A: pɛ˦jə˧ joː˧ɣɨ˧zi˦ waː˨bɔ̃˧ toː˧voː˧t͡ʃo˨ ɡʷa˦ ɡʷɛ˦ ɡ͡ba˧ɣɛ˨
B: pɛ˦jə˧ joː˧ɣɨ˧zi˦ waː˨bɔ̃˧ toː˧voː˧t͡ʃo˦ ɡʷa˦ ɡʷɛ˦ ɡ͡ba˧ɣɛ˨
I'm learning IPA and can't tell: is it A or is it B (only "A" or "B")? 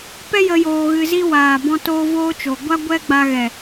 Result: A